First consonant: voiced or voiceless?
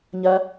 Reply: voiced